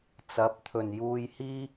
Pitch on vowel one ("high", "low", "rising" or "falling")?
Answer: rising